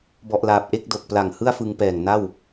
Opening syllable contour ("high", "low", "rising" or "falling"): low